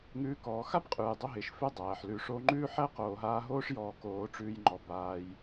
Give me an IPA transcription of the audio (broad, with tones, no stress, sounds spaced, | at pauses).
ŋ ʉː˦ k ɔː˧ x a˦ b qʼ ʉː˨ j dˤ o˧ ɦ ɪː˨ ʃ f ɪ˦ dˤ æː˨ ħ l ʉ˧ ʂ o˧ ŋ͡ǃ ʉː˦ ħ æ˦ q oː˨ ɦ aː˧ ɦ oː˦ ʂ j ɔː˧ k oː˧ ʈ͡ʂ ʉː˧ j ŋ͡ǃ ɔ˨ b aː˧ j